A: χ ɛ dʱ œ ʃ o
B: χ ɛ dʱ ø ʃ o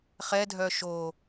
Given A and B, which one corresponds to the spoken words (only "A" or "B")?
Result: A